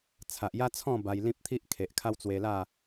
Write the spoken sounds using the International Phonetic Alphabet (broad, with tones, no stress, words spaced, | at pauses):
t͡sʰa˨ʔja˦t͡sʰɔ̃˥˧ ba˧jlĩ˦p̚t̪ʰi˦ʔ kʰe˨ʔkʰa˦wt͡swe˧la˥˧